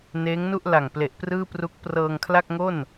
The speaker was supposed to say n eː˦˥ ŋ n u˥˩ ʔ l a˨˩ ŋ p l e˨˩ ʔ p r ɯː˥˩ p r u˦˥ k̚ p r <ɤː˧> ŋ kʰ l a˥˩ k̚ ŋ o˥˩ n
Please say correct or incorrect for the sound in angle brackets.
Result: correct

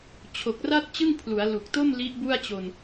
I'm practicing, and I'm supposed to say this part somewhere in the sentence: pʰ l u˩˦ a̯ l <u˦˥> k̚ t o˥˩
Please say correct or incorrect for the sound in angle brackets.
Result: incorrect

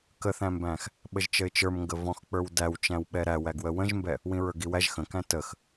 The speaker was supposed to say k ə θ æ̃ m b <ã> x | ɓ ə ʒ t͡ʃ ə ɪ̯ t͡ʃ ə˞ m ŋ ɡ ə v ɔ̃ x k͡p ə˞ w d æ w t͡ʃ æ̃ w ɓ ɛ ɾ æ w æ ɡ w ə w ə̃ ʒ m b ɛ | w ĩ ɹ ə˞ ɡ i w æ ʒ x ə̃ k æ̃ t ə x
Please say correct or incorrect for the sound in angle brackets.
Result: incorrect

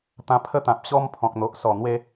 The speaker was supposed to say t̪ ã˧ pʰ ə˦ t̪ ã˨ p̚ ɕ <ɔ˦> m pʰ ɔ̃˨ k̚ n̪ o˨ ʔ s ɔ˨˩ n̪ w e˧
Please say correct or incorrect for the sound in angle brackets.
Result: correct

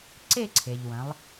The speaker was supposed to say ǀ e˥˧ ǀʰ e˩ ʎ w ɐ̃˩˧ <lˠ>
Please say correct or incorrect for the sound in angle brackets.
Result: correct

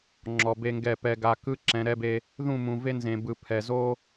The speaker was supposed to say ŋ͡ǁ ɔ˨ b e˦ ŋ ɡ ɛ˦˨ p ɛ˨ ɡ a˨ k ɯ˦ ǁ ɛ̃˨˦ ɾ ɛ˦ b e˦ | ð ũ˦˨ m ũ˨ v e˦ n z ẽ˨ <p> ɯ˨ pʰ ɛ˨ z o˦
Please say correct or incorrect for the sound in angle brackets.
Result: incorrect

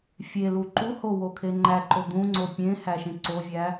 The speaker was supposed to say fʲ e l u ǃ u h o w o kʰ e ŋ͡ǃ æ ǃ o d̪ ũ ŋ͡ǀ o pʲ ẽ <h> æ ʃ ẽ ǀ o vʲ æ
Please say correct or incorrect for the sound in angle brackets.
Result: correct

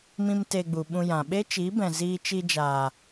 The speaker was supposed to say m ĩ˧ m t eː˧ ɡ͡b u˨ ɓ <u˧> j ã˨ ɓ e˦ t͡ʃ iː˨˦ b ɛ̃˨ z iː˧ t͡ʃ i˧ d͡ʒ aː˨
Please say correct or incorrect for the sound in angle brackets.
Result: incorrect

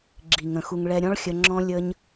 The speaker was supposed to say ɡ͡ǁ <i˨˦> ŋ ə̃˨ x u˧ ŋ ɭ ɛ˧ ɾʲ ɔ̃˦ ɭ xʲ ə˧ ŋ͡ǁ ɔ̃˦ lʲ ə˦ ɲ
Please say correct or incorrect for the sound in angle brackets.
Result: incorrect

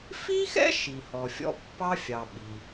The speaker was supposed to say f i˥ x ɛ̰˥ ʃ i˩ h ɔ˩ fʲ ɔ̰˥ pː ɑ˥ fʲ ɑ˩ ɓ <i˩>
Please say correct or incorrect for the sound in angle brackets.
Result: correct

